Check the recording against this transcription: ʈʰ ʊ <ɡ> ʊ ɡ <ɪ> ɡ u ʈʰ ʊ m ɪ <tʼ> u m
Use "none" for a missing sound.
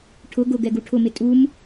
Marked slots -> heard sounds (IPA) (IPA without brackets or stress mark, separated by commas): ɡ, ɛ, tʼ